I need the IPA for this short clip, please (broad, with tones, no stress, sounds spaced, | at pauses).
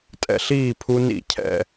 tʼ ɛ̰˧ ɬ iː˥˨ pʰ u˦˥ n ḭ˥˨ cʰ ɛ̰˥˨